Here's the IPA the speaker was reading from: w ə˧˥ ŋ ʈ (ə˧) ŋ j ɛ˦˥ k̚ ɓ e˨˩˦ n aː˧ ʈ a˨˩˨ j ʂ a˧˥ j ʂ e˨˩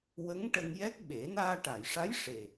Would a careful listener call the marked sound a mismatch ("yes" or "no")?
no